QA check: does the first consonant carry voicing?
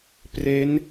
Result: no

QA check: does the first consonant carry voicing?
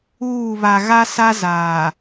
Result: yes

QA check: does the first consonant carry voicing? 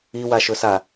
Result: yes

